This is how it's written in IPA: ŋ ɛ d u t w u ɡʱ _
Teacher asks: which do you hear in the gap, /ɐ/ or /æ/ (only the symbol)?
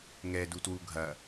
ɐ